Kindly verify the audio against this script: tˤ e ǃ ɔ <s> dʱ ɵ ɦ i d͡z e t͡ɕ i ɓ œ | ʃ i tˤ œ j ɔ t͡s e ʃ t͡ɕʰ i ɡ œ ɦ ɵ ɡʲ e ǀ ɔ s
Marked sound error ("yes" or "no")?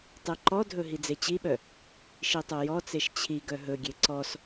yes